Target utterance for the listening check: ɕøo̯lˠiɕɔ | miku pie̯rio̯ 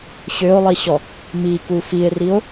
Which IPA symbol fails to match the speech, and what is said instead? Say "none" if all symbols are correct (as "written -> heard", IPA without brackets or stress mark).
p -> f